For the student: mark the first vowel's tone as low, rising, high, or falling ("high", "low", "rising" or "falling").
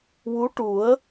rising